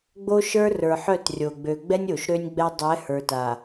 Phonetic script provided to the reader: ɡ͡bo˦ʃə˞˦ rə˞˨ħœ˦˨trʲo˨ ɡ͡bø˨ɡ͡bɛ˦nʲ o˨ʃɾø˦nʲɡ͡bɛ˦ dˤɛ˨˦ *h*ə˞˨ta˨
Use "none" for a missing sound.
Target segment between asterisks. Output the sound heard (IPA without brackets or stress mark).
h